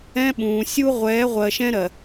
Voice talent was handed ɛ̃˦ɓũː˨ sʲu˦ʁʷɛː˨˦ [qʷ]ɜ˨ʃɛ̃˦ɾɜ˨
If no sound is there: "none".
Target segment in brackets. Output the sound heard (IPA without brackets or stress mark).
ʁʷ